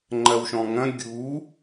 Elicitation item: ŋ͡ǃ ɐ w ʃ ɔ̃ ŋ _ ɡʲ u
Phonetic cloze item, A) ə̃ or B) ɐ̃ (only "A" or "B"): B